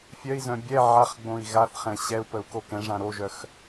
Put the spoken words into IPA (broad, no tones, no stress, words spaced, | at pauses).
fʲœi̯zœ̃ bʲɛ ʕaχɡ͡bõi̯ ɣaθχɛ̃ ɕɛu̯pəu̯ kokɛ̃ʐã ɾoʒœx